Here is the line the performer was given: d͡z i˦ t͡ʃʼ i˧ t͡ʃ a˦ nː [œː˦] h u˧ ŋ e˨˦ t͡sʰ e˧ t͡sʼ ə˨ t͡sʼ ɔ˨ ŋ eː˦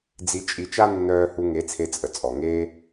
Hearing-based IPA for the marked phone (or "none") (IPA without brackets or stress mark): œː˦